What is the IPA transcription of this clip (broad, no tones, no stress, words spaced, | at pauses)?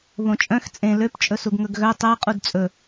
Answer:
βõt͡ʃʼœ̃x t͡sʼẽ løp t͡ʃʼɵsuɡŋɵɡɣœ tˤæ qʼudt͡sʼɵ